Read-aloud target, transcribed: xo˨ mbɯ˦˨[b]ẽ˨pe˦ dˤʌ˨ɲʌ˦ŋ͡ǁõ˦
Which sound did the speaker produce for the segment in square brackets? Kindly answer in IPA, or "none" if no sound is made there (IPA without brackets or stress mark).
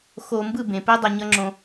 b